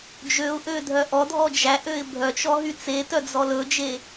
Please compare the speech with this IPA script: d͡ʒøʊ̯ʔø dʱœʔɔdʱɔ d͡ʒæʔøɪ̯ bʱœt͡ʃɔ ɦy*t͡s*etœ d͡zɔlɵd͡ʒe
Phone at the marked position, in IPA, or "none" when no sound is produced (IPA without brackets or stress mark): t͡s